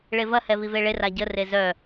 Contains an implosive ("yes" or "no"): no